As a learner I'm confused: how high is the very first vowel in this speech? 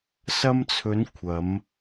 low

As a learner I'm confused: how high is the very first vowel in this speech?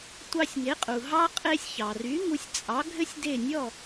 low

